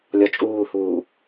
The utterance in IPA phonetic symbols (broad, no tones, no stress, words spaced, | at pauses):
lʲɔt͡ʃʼuːhuː